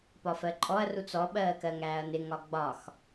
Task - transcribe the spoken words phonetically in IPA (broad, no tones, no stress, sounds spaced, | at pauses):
p ɒ f ɜ ǃʼ ɔ ɐ̯ r u t͡s ɔ ɓ ɜː k ɜ ŋ æː ɐ̯ n ɪ ŋ ɒ ɡ͡b ɒ x